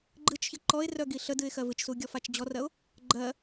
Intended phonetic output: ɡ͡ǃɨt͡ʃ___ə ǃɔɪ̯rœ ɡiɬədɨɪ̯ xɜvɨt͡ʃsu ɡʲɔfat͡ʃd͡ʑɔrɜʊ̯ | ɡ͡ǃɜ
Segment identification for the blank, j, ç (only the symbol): ç